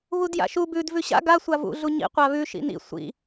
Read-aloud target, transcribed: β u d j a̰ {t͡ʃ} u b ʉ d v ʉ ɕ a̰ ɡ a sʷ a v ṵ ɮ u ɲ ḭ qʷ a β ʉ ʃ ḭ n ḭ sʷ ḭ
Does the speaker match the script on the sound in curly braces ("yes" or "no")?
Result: no